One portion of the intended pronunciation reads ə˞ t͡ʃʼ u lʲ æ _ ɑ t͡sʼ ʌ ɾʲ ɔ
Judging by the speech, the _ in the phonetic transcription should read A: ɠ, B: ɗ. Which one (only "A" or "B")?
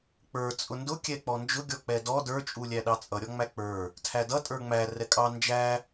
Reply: B